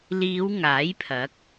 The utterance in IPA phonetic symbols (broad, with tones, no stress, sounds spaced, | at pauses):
l iː˨˧ w ŋ aː˨˥ j pʰ ɐ˨˥ k̚